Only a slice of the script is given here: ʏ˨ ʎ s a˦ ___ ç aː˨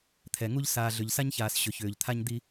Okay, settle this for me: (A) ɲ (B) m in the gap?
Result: A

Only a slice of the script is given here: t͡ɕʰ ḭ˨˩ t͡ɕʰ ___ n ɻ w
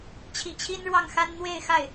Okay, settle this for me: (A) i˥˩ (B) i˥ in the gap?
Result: B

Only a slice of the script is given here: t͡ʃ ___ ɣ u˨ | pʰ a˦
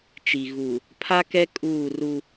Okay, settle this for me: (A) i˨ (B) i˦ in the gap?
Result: A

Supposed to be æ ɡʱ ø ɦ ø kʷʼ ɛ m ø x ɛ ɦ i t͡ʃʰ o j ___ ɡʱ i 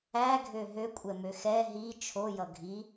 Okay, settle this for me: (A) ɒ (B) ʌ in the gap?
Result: B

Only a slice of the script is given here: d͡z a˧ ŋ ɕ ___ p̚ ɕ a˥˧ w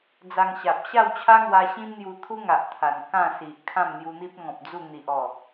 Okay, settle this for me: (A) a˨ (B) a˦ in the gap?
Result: A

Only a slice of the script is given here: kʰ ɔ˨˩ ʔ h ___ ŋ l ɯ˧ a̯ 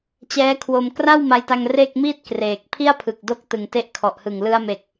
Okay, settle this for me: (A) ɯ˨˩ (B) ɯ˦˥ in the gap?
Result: A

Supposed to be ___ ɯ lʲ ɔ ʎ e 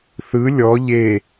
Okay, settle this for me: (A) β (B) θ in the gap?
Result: B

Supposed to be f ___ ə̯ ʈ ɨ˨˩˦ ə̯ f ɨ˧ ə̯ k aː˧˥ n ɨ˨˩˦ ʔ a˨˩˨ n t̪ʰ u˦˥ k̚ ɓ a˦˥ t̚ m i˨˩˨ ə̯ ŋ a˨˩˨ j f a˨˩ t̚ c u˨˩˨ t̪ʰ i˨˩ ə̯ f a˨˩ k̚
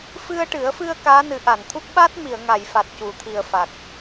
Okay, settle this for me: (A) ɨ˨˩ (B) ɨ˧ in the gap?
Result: B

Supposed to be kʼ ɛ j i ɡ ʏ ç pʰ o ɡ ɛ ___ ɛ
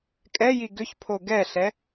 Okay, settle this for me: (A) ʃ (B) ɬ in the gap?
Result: B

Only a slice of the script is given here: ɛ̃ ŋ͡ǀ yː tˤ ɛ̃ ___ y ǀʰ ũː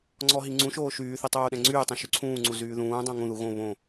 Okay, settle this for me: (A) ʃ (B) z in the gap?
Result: A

